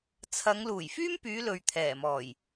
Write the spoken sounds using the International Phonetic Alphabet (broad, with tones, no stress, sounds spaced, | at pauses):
t͡sʰ ɐ˨˧ ŋ l uː˨˩ j f yː˥ m p yː˨˧ l ɵ˨ ɥ t̪ʰ ɛː˨˩ m ɔː˨˩ j